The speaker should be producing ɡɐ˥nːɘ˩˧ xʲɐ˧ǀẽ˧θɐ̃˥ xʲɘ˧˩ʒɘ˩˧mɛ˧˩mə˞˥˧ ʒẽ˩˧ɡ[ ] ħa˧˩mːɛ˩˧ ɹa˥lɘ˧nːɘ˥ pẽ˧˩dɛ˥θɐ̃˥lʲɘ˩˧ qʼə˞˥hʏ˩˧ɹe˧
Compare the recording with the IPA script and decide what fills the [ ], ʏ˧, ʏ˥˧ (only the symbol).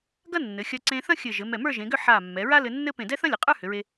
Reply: ʏ˥˧